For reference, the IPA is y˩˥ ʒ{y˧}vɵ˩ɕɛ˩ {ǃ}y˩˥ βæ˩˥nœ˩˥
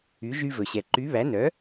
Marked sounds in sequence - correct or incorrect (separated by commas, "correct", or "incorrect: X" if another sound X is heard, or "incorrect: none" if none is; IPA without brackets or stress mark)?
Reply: correct, correct